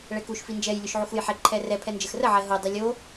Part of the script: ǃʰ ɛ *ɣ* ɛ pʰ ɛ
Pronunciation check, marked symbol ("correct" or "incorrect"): incorrect